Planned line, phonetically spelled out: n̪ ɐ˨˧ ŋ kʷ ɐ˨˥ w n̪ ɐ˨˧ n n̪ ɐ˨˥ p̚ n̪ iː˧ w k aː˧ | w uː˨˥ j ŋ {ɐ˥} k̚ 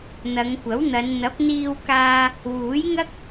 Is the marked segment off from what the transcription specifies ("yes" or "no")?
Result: no